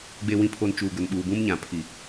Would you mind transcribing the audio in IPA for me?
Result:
ɡ͡b e˨ w ĩ˨ pʰ o˨ n t͡ʃ uː˨ ɡ ʊ˨ n ɓ uː˨ b ũ˦ m ɲ ã˨ pʰ i˨

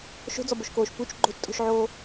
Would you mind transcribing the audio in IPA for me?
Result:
ʃ o̤ d͡z ɔ b o ʃ k oː ʃ p u t͡ʃ ɡ͡ǃ o̤ t͡ʃ tʼ o̤ ʃ ʕ oː

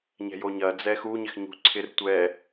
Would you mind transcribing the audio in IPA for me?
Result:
ɲ ɛ̤ j o ɲ ɐ d͡z ɛ x u ɲ ɪ x ɲ ṳ ǀʰ ɪ r tʷ ɛ

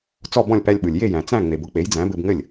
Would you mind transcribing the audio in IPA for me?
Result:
t͡s ɔ˥˩ b ɔ̃˥˩ lʲ p æ˧ lʲ ɓ ɯ˩ lʲ j e˥˩ j æ̃˩ t͡s æ̃˥˩ ŋ͡m e˩ b ʊ˥ k͡p e˩˥ j d͡z æ̃˩˥ b ɘ˧ b ŋ ɘ˥˩ lʲ

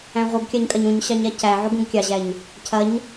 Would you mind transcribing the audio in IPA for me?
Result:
æ̃ ʁʷ ɯ ɡ kʲ a ɲ kʼ ɐ ɲ ũ ɲ ɕ ɑ ɲ a c æ ʕ u ɡ ũ ɡ kʲ ɑ ʑ æ ɲ | cʰ ɐ ɲ

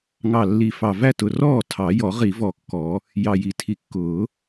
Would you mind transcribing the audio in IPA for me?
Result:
ŋ ɑ˨˩ lː i˨˩ f ɑ˨˩ v æ˥˩ t ʊ˨˩ r ɔː˥˩ tʰ ɑ˨˩˦ j ɔ˨˩˦ ʁ i˨˩˦ v ɔ˨˩ kː ɔ˨˩˦ | j ɑ˨˩ j i˨˩ tʰ i˨˩ kː ʊː˨˩˦

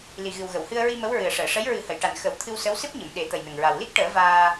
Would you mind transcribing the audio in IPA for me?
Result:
l i˨˩ ɣ ɨ˨˩ w ɣ ə˨˩˨ w h ɨ˧ ə̯ ɹ i˧ m ə˧˥ w ɹ ɨ˨˩ ə̯ ʂ əː˨˩˨ ʂ ə˧˥ j ɹ ɨ˨˩˦ h ə˨˩˨ j ʈ a˨˩ n x ə˨˩˦ w t̪ʰ ɨ˧ w s ə˧˥ w s ɨ˦˥ p̚ ɲ ə˨˩˨ m ɗ e˨˩˦ t̪ ə˨˩ j n ə˨˩ ŋ ɹ a˨˩ w l i˦˥ k̚ ʈ əː˨˩˦ v aː˧

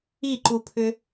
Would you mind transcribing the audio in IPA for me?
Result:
i ǃ u pʰ ʏ

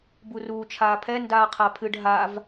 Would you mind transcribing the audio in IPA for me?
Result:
b u r uː t͡ʃʰ aː pʰ ɛ n d aː qʰ a pʰ ɨ ɖ ɦ a v

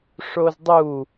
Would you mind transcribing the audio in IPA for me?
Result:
ʂ o z dˤ u

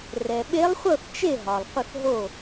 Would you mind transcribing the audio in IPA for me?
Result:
r ɛ˨ ɓ e˧˥ lˠ χʷ ɤ˥˨ θ t͡ʃ e˥˨ ɦ ɒ˨ lˠ qʷ ə˥˨ θ ɦ o˥˨

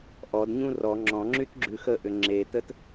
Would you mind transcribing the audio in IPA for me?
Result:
ʔ ɔ d ɲ ũ r ɔ ŋ͡ǁ ɔ̃ ŋ͡ǁ y t ɡ͡ǁ ʉ x ə ʔ ʏ ŋ͡ǁ e t ə t

